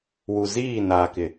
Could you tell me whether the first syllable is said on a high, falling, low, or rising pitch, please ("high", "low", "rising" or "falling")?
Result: low